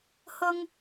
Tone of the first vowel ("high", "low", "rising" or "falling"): high